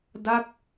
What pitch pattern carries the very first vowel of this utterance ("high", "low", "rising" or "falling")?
falling